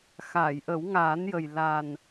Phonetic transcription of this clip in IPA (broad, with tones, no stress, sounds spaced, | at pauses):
x aː˨˩˨ j ʔ ə˨˩˦ w ŋ aː˨˩˦ n j ə˨˩ j l a˨˩ n